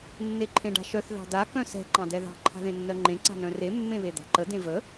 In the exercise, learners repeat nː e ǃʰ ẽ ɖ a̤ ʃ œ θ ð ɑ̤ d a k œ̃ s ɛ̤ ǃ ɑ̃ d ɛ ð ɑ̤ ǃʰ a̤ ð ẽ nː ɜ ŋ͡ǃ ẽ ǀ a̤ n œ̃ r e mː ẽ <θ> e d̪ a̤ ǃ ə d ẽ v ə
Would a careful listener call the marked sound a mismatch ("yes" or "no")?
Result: yes